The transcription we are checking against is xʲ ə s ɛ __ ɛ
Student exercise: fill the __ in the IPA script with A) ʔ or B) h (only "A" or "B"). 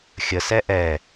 A